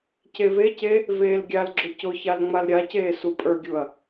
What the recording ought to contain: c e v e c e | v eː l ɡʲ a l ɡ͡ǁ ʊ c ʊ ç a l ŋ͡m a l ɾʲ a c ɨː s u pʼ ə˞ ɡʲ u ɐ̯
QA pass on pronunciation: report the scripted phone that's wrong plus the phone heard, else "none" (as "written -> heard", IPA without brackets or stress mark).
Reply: ɨː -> eː